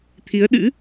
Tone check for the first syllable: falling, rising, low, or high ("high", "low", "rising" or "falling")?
rising